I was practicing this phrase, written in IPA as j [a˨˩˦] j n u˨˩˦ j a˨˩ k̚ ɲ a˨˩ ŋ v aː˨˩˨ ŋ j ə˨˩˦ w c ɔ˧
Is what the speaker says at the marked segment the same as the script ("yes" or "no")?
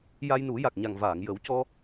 no